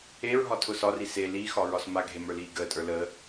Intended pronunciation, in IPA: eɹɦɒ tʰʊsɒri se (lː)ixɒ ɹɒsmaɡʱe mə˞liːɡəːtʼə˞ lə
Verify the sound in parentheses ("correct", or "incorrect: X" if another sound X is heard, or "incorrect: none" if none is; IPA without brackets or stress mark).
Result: incorrect: l